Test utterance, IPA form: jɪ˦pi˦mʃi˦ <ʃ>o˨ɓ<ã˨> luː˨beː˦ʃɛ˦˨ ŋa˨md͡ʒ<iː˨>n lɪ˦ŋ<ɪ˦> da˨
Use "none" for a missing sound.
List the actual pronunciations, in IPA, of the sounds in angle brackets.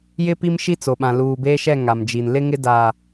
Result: t͡s, ã˨, i˨, ɪ˦

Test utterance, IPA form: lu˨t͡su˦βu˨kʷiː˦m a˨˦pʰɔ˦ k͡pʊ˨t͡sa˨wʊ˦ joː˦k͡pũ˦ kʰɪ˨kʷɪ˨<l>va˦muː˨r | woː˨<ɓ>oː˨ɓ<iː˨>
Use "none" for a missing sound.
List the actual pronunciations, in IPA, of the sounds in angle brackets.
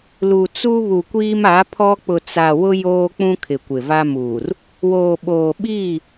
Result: none, ɓ, iː˦˨

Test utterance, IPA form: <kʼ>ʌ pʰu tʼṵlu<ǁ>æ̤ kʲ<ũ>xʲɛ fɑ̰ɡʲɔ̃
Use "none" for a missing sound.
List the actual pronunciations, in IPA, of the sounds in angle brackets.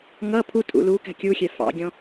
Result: ŋ, k, u

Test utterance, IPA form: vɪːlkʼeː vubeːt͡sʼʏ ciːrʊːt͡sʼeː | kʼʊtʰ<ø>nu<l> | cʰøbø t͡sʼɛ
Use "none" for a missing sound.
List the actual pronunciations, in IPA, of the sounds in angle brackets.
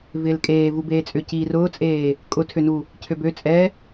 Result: ø, none

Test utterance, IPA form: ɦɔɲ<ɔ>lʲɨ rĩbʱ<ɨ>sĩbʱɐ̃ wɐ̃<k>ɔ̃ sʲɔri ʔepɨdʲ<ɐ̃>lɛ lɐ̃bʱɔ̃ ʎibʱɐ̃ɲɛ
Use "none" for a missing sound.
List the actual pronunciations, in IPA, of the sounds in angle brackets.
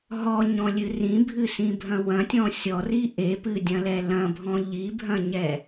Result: ɔ̃, ɨ, tʲ, ɐ̃

